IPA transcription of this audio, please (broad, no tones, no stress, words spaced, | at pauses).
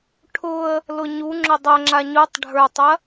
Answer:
ʈʰʊə̯ | lʊɲuŋ͡ǁʊ dˤɐŋ͡ǁa ɲutˤ ɖʱə˞tˤɐ